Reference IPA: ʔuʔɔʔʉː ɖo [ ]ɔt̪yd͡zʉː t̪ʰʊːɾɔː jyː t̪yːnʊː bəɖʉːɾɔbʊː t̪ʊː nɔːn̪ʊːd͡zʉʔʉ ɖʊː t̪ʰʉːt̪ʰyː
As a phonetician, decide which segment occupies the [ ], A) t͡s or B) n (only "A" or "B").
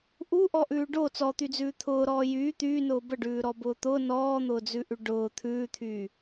A